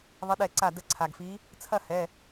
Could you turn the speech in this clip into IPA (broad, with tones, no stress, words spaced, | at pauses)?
ðˤə˨˦ɗɛ˧˩ǀa˧˩ də˧˩ǀʰa˩ɡfi˨˦ | t͡sʰɐ˥˨hɛ˩˧˩